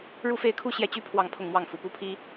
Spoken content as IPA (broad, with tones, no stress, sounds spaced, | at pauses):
ɻ u˥˧ f e˥˩ ɪ̯ kʰ u˥ ɕ j ɛ˥˩ t͡ɕ y˥ pʰ w ɑ˥˧ ŋ pʰ ʊ˥˧ ŋ m w ɑ˥˩ ŋ f u˨˩ p u˥˩ pʰ i˥